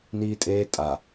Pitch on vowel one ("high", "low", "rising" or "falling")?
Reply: high